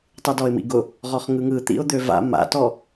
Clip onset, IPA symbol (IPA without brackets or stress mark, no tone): tˤ